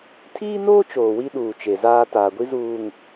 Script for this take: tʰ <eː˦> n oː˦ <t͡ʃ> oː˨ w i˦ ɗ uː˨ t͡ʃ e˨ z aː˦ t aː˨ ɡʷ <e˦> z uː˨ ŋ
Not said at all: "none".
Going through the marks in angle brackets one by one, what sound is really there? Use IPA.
iː˦, t͡ʃ, i˦

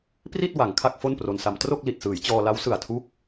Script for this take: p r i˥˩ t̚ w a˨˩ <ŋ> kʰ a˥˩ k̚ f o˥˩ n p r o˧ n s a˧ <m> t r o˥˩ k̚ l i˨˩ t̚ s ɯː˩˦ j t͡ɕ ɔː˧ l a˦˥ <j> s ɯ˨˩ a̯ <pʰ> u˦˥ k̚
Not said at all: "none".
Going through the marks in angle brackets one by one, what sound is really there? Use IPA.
ŋ, m, w, tʰ

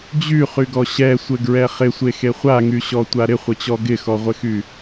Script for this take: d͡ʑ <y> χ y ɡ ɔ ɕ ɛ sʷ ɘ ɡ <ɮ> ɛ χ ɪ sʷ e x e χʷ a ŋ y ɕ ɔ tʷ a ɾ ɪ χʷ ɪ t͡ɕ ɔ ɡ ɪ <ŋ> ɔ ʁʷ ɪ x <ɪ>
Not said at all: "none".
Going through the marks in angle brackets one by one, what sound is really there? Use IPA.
y, ɹ, x, y

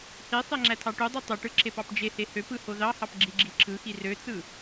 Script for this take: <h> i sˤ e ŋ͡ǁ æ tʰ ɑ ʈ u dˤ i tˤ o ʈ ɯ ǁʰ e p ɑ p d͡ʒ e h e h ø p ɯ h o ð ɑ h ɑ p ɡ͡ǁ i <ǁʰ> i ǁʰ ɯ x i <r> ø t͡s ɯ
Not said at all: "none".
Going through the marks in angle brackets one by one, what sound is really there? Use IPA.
h, ɡ͡ǁ, r

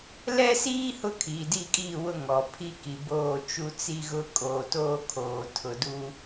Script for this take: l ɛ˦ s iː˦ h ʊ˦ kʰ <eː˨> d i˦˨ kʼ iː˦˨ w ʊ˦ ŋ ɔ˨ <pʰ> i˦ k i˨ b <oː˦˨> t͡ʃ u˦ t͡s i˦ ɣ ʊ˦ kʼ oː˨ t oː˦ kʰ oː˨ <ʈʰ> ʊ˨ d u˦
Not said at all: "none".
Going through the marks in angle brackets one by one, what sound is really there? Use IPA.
iː˨, pʰ, oː˦˨, tʰ

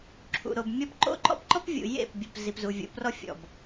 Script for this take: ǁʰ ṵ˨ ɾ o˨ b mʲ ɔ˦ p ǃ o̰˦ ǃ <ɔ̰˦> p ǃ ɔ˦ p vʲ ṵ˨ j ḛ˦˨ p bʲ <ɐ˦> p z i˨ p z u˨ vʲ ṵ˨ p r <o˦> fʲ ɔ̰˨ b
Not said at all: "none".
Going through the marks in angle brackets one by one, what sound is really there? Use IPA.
ɔ̰˦, ɐ˨, ɔ˦

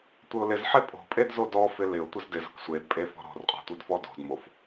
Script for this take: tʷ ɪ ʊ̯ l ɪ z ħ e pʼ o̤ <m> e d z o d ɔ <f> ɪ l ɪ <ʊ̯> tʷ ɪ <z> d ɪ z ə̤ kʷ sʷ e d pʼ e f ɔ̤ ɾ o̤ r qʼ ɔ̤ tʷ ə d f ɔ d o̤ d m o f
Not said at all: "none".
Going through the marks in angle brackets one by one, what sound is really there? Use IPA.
pʼ, f, ʊ̯, z

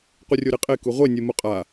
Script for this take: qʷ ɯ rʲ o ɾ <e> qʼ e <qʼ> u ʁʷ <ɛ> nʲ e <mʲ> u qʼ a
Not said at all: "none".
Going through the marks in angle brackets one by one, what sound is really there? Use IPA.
e, k, e, m

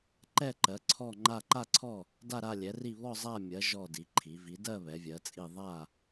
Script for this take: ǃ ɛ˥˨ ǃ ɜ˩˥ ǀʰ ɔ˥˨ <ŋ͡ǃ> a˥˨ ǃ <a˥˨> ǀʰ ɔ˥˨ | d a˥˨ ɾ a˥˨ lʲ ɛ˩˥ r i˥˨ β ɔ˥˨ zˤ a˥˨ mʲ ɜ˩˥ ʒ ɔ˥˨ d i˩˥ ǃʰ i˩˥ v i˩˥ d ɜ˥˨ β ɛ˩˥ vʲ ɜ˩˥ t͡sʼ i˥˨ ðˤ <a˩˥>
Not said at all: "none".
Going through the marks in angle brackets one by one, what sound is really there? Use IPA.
ŋ͡ǃ, a˥˨, a˥˨

